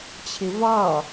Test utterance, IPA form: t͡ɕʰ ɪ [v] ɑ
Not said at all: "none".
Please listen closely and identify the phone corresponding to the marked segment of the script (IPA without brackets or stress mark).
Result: v